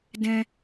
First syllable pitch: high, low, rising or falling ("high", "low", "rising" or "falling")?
high